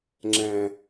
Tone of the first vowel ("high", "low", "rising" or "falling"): low